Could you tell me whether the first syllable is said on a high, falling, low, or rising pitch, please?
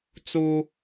high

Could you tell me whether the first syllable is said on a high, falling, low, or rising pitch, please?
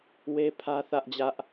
high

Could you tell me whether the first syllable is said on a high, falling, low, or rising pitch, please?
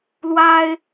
high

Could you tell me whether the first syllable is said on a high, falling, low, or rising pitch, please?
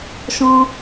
high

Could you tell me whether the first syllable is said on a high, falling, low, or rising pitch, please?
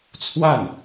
falling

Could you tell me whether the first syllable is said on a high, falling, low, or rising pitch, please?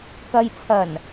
low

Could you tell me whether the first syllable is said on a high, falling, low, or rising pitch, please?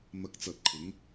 low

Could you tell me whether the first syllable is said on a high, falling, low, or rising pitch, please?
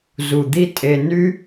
low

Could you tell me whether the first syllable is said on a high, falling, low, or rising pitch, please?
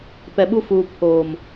low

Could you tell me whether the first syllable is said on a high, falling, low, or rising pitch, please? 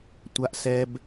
high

